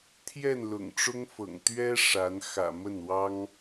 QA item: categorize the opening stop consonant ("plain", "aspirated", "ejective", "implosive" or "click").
aspirated